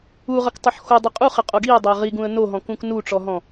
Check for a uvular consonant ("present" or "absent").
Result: present